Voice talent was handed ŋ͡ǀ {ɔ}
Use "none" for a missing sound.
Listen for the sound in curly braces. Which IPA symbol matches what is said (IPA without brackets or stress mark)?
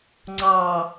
ɑ